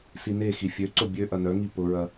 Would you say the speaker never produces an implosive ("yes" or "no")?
yes